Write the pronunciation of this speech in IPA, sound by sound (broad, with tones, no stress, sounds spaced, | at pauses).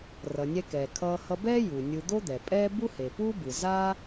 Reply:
r ʌ˩ nʲ ɛ˧ k ɛː˩ kʰ ʌː˧ h ʌ˧ b ɛː˥ j u˩ nʲ ɯ˧ d̪ o˥ d̪ ɛ˩ pʼ ɛː˥ b u˥ h e˩ p uː˥ b ɯ˩ z a˥